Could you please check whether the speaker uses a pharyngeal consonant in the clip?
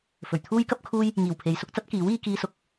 no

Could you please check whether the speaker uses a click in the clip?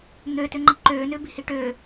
yes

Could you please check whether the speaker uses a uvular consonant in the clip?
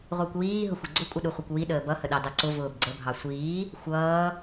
yes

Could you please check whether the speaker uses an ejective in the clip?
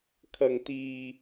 no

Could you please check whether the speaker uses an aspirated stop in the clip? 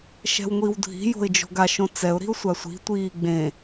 no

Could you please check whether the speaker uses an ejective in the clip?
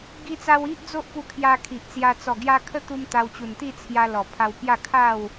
no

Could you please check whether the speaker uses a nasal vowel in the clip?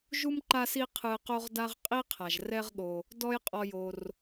no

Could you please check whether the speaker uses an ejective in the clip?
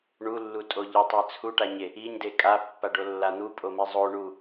yes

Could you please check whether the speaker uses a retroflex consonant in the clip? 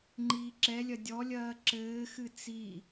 no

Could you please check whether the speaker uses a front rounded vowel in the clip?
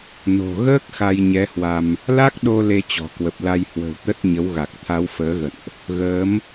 no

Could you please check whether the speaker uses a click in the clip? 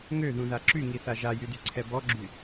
yes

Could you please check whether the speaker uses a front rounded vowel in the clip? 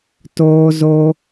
no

